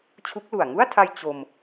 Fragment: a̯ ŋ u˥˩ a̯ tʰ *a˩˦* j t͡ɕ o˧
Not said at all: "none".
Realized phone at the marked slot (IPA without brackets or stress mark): a˧